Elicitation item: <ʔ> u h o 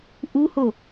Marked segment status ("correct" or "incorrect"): correct